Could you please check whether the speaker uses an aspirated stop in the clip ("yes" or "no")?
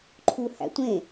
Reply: yes